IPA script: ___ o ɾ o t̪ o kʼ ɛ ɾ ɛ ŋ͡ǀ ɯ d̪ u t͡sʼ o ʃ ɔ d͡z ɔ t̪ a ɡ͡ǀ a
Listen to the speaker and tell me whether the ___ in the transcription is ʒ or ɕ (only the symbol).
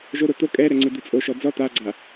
ʒ